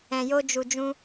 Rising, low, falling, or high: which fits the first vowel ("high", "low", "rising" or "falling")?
low